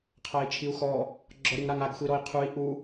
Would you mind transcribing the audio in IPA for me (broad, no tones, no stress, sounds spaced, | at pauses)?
qʰ a i̯ t͡ʃʰ i u̯ x ɔ | ɡ͡ǁ ɔ ɾ i ŋ ɾ a ŋ a ɡ xʷ i ɾ ɔ i̯ qʰ u i̯ ʔ u